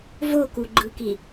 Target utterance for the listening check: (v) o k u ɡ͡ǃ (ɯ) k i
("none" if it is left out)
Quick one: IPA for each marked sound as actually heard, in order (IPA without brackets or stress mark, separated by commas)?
v, ɯ